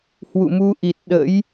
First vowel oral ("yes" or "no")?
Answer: yes